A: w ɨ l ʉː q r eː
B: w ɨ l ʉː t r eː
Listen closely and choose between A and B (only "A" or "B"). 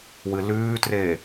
B